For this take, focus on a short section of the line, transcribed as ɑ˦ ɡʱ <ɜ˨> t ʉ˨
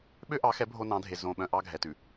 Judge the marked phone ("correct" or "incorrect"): incorrect